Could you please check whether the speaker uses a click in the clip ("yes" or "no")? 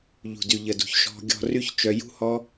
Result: no